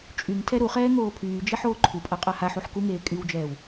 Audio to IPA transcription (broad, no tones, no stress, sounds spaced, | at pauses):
t͡ʃʼ y ŋ tʰ ɛ ɾ u χ ɛː ŋ oː pʰ yː d͡ʒ e ħ oː ǃʰ u pʼ a qʼ a h a ħ u ħ k u ŋ eː kʼ y w d͡ʒ ɛː w